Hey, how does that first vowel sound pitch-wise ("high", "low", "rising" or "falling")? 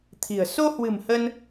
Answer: low